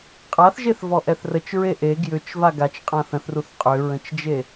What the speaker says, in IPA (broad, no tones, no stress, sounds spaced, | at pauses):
qʼ a θ ʒ e θ v ɔ ʔ ɛ θ r ə t͡ʃ ɹ e ʔ e ɡ j ʏ t͡ʃ v a ɡ a t͡ʃ qʼ ã θ ə̃ θ r u θ qʼ ʏ ɹ ə̃ t͡ʃ d͡ʒ e